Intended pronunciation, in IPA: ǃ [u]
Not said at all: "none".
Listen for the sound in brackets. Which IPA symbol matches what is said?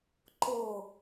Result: ʊ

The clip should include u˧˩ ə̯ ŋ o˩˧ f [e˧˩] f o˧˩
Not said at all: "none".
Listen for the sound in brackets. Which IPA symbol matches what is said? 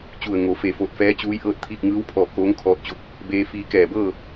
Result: e˧˩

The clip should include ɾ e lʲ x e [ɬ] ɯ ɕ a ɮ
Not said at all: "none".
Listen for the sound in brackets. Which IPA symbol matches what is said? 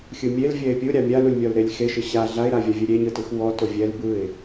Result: ʃ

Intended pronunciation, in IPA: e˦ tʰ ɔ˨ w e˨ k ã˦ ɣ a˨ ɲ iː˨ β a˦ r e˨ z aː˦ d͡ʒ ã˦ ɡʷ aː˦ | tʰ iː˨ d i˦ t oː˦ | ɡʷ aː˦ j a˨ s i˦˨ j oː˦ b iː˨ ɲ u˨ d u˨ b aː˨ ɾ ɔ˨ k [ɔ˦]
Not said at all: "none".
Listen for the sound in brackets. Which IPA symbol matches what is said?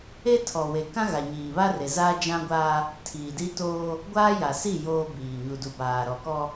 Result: ɔ˦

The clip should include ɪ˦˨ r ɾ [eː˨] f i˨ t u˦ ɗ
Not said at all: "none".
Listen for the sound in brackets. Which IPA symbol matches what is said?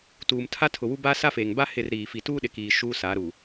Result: iː˨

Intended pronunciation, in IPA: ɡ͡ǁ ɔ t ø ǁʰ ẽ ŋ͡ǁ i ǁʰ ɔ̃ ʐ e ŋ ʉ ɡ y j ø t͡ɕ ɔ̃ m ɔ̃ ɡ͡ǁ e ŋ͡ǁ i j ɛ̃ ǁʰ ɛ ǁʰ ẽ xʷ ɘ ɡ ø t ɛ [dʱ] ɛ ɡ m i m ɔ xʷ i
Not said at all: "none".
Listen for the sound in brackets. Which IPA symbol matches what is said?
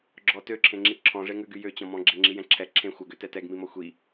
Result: t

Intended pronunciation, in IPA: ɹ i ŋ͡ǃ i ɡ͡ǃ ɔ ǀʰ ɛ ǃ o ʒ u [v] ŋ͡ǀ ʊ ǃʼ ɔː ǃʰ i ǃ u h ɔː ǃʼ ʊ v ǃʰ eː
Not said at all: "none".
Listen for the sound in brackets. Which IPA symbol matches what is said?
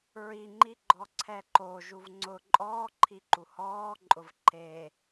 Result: v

